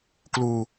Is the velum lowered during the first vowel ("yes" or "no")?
no